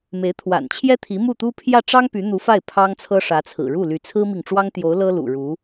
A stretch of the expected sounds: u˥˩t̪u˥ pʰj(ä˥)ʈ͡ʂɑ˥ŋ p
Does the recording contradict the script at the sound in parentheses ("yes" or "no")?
yes